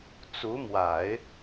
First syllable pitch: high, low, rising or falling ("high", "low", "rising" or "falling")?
rising